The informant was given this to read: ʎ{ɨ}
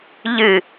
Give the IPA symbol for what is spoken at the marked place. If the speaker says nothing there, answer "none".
ɨ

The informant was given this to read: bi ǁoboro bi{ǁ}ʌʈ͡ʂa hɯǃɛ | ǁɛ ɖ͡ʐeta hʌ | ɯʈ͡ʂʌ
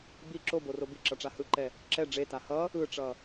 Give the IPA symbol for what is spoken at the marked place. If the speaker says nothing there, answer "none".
ǁ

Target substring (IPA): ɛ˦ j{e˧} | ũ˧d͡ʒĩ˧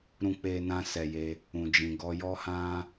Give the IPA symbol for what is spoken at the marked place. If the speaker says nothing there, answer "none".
e˧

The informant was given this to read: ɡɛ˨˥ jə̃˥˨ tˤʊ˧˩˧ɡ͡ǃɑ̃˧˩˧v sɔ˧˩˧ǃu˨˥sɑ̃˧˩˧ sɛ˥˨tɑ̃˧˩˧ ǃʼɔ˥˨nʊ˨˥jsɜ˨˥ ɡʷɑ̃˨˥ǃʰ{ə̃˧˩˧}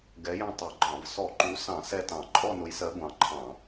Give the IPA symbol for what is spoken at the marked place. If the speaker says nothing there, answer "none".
ɑ̃˧˩˧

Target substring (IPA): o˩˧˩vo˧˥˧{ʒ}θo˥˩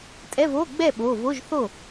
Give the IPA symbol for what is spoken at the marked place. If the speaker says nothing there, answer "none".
ʒ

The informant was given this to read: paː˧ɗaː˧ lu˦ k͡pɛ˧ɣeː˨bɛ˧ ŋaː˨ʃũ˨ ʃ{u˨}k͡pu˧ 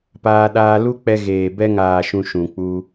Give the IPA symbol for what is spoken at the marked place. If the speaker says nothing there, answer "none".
ũ˨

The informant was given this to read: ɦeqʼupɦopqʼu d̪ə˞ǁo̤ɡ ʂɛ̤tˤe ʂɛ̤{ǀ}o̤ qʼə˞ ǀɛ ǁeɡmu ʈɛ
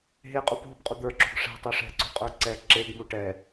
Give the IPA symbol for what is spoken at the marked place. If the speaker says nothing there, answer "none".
ǀ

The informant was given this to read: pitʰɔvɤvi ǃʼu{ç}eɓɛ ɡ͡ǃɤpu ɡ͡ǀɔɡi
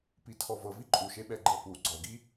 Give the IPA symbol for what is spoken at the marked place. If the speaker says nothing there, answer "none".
ʃ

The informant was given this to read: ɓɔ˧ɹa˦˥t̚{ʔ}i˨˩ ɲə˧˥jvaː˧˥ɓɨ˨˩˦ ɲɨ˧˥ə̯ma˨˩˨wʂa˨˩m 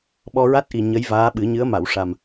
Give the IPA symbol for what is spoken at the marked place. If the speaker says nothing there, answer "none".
ʔ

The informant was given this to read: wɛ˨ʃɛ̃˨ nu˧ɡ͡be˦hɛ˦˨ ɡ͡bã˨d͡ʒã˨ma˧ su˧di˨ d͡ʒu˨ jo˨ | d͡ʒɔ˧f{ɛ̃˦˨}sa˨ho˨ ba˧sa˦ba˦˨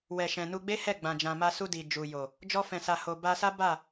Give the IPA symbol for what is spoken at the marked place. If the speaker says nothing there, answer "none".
ɛ̃˨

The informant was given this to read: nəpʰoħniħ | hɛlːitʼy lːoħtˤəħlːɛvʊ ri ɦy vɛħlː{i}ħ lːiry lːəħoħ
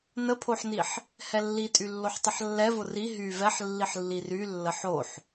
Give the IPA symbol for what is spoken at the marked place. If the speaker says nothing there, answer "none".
i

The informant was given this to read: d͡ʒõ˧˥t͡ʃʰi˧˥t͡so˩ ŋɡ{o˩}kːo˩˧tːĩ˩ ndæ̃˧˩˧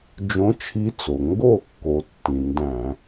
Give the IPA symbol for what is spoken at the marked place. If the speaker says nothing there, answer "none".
o˥˩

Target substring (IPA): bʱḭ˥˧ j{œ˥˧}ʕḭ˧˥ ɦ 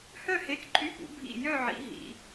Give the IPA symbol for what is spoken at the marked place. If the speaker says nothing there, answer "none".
œ˥˧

